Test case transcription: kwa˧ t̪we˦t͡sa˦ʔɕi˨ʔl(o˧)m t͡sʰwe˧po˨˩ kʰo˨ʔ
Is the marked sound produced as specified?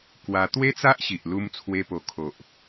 no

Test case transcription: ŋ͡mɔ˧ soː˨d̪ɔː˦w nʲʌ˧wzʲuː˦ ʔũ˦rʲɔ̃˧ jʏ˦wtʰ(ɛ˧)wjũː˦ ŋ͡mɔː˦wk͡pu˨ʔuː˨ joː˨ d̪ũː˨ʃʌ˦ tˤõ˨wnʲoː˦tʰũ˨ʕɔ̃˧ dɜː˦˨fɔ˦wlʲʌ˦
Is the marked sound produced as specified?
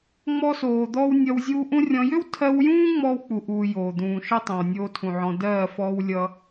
no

